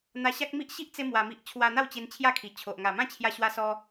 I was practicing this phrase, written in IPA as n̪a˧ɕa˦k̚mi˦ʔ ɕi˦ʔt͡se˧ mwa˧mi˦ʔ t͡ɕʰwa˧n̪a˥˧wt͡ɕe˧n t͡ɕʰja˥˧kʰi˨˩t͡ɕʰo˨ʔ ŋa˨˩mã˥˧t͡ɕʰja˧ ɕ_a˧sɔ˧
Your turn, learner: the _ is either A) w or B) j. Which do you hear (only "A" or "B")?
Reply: A